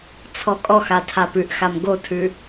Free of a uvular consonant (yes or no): yes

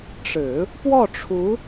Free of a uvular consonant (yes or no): yes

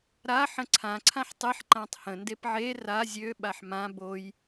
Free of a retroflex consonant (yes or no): yes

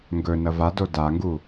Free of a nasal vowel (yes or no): yes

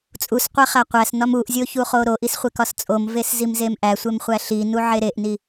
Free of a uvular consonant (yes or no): no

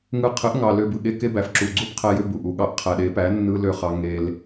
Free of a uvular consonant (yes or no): no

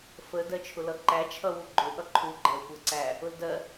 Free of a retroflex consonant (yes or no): yes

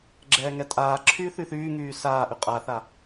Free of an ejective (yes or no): no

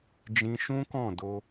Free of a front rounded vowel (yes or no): yes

